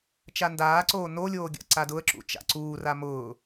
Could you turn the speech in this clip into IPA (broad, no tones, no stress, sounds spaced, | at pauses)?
t͡ʃ a n d aː ǀ oː n o lʲ oː ɡʲ a̰ ǀ a d ʊ ə̯ ǁ ṵ t͡ʃ a̰ ǀ uː r a m ʊː